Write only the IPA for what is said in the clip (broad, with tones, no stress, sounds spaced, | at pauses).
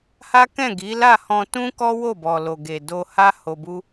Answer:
h a˦ k ɛ̃˦˨ ɡ i˨˦ l a˦˨ h ɔ̃˧ t ũ˦ k ɔ˦ w o˦˨ b ɔ˨ l o˨ ɡ e˨ d o˧ h a˦ h o˧ b u˦